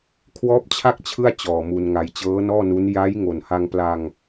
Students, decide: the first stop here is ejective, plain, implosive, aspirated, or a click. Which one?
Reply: aspirated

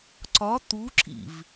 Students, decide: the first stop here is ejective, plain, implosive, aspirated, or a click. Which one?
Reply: click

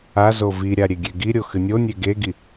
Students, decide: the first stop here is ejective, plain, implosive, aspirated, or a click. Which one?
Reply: plain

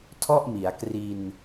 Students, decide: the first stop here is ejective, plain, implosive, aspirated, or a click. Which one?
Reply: aspirated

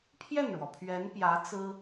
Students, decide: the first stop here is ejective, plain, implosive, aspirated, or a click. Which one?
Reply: aspirated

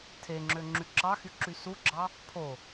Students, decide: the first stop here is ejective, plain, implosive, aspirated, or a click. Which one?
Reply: aspirated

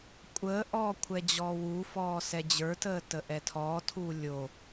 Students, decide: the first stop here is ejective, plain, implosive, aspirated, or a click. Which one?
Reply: ejective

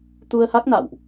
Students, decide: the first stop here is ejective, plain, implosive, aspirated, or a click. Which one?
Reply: plain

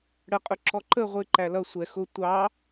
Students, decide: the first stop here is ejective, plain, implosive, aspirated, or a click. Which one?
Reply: ejective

